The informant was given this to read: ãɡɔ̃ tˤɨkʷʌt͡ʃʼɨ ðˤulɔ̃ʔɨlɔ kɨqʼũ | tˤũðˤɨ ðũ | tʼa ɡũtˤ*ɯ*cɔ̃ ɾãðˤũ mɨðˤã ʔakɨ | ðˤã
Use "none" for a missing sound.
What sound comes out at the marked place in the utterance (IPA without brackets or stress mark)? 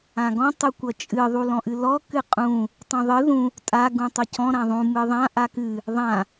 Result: u